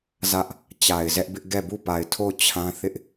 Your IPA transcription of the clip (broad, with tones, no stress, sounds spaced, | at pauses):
z ä˦ ʔ | t͡ɕ a˨ ɪ̯ z ɛ˦ ʔ b ɪ˦ ʔ ɡ ɛ˦˨ b u˦˨ p a˨ ɪ̯ tʰ o˦˨ ʊ̯ t͡ɕʰ ã˦ θ ɪ˦ ʔ